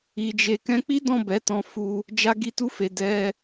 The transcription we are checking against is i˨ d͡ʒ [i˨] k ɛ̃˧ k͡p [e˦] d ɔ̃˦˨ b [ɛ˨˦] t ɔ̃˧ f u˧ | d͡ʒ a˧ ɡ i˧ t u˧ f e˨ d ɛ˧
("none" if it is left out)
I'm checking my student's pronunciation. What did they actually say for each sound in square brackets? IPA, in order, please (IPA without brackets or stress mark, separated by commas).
e˨, i˦, ɛ˨˦